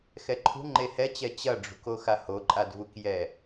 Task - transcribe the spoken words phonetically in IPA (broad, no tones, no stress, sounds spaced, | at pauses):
x ɛ ǃʰ ṳ ŋ͡ǃ e h ɛ t͡ɕ ɛ t͡ɕ ɐ ɖ͡ʐ ṳ k o x a h o ǃʼ a d v u k j ɛ